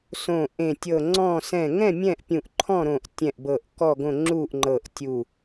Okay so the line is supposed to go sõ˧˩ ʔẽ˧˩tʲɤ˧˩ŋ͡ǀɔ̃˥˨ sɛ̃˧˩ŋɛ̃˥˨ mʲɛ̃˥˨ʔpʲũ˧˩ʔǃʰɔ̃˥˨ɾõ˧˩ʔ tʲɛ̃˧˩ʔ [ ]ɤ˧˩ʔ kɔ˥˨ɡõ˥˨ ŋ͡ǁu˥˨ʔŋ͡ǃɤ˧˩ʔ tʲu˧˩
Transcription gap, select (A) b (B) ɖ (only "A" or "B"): A